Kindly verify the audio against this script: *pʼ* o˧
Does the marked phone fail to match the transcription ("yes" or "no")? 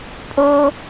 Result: no